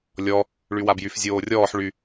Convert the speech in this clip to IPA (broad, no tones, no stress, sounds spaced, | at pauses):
lʲ ɔ | ɭ y w a b j y f zʲ oː rʲ ɔː ħ ɭ y